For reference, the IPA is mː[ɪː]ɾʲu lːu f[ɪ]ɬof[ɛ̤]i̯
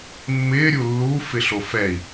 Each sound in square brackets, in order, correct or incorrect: correct, correct, incorrect

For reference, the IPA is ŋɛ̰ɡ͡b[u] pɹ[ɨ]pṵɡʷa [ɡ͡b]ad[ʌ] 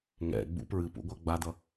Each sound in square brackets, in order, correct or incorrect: incorrect, correct, correct, correct

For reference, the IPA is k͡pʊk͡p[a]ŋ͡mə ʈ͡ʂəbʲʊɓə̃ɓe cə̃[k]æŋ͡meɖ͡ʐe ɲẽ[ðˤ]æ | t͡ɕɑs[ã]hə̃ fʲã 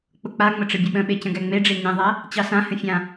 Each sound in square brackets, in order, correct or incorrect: correct, incorrect, correct, correct

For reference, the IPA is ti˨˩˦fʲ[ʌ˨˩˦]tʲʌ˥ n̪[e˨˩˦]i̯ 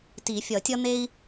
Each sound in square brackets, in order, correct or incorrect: correct, incorrect

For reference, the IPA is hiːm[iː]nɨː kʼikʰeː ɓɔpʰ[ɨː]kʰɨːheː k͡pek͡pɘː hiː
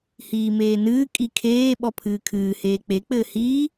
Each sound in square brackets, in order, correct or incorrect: incorrect, correct

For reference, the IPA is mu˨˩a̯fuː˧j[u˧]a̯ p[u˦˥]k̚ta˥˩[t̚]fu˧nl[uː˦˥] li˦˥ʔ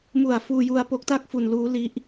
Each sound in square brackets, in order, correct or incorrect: correct, incorrect, incorrect, correct

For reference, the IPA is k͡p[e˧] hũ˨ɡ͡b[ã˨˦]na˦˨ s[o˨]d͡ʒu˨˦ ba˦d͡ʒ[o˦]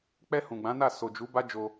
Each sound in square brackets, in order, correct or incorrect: incorrect, correct, correct, incorrect

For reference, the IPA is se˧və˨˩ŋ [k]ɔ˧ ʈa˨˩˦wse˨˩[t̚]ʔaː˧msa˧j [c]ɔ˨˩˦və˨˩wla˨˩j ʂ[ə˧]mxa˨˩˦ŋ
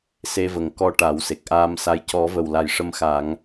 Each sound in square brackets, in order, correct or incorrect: correct, incorrect, correct, correct

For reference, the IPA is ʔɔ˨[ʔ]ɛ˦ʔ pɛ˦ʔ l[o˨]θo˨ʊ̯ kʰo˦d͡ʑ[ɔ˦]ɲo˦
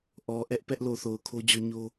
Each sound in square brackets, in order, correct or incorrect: correct, correct, correct

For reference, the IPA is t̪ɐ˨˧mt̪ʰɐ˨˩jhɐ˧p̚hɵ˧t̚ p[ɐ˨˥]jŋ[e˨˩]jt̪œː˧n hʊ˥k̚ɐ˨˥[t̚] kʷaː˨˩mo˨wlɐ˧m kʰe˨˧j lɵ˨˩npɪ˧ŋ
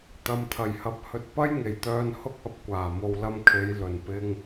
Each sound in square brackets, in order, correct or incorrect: incorrect, correct, incorrect

